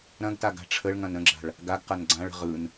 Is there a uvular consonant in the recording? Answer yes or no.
yes